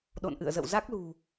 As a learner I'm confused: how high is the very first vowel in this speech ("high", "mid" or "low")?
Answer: mid